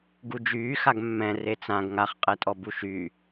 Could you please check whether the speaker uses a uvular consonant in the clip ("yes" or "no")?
yes